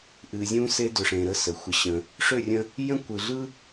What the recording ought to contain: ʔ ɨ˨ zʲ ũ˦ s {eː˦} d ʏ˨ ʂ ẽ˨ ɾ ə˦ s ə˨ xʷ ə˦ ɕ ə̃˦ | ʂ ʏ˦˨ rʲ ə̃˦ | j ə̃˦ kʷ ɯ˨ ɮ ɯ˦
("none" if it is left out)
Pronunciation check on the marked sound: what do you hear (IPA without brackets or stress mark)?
e˦